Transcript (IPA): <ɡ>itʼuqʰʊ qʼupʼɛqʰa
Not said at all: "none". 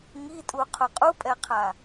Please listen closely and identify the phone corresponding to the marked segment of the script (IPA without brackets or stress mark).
ŋ